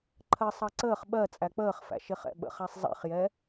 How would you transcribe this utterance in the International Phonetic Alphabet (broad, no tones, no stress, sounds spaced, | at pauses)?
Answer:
ǃʰ ɜ sˤ ɑ ǀ əː χ ɓ ɜ t͡sʼ æ k͡p əː χ f æ̰ ʃ ɪ χ ɛ̰ ɓ ə̰ χ æ sˤ zˤ ɛ̰ χ j ɛ